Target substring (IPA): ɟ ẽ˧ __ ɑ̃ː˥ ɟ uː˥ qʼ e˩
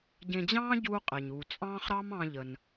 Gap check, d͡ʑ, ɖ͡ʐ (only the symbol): d͡ʑ